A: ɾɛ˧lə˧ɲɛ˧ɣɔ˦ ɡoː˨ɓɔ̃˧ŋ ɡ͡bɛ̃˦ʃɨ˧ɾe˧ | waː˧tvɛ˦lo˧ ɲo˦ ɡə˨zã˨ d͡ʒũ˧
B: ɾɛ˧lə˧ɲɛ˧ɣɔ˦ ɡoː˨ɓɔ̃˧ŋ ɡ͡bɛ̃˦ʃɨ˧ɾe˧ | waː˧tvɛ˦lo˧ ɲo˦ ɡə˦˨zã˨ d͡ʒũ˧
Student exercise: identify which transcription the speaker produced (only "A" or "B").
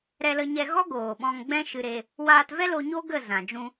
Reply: B